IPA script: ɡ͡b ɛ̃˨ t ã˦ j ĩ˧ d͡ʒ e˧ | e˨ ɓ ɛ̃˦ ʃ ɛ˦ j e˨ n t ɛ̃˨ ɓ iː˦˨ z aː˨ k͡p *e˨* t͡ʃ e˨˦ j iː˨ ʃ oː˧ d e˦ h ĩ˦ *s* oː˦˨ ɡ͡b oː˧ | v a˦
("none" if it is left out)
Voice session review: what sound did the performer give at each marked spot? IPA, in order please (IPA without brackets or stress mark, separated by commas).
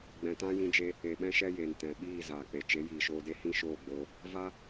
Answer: e˨, ʃ